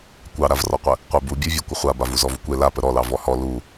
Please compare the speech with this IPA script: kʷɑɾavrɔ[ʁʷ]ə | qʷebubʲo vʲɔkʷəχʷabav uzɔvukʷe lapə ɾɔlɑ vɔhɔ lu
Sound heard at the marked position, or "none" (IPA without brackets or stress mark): qʷ